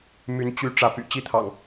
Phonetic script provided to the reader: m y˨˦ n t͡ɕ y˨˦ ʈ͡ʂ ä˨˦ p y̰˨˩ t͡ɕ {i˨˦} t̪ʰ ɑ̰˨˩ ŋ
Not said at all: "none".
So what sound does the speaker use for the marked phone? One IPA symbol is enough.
i˥˨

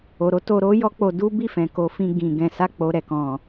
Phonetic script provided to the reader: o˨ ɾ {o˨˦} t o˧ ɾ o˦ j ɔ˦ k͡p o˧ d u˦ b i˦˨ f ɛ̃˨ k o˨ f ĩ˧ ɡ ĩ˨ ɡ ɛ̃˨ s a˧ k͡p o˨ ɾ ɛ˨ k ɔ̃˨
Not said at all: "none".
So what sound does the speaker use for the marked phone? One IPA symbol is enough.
o˨˦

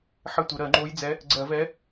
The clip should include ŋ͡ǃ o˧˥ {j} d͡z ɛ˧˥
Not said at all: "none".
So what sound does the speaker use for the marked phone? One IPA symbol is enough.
j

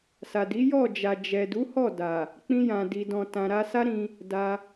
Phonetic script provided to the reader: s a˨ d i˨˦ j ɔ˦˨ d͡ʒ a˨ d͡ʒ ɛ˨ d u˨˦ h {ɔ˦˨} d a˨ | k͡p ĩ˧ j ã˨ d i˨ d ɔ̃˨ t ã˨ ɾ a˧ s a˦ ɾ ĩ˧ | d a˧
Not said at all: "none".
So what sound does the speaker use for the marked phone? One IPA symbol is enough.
ɔ˦˨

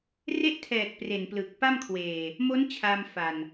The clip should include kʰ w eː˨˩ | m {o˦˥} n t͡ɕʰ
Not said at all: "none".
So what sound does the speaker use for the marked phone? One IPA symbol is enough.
o˦˥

